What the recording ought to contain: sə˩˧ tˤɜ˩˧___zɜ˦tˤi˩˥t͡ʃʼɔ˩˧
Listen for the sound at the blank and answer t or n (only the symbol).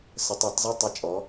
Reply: t